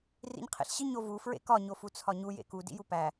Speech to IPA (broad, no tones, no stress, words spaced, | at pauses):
rḭɲqʰḛɬɕi ɲovu fɹḛkɒ ɲofut͡sʰɒɲu jḛku dḭjupæ